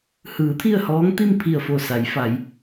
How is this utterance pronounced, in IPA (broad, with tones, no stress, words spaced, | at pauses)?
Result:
hɯː˩˧ t̪ʰi˥˨ə̯hɔː˧˥ŋt̪i˥˨m pʰi˧˩ə̯fo˧˩sa˩˧jfa˩˧j